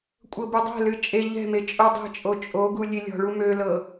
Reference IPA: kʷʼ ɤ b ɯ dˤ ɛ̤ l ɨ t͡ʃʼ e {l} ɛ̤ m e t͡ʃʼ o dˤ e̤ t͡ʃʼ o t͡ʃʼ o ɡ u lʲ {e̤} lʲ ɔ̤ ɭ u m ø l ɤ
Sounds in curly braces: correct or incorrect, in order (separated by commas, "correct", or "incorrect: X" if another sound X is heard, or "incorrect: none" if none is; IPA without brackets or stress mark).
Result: incorrect: ʎ, incorrect: e